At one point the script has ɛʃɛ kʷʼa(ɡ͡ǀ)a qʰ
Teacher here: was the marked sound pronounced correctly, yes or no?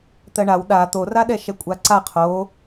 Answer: no